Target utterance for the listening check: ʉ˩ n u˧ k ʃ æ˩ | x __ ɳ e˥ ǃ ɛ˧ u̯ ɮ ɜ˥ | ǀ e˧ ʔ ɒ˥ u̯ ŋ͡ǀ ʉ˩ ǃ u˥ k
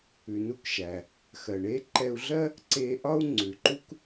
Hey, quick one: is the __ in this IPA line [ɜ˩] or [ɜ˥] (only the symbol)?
ɜ˩